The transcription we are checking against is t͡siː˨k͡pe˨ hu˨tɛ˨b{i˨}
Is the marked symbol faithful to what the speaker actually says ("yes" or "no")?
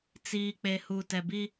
no